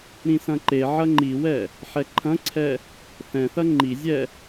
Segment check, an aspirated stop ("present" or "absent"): present